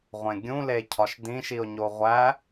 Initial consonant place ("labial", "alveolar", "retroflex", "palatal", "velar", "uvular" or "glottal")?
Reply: uvular